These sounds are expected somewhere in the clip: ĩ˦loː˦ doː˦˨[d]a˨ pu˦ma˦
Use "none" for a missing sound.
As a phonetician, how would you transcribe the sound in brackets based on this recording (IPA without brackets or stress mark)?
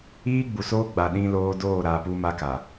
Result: ɾ